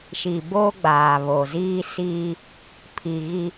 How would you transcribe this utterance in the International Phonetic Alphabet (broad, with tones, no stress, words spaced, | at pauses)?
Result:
ʃi˨boː˦ɡ͡baː˨ βo˨ziː˦siː˦ | pʰi˨ ɣi˦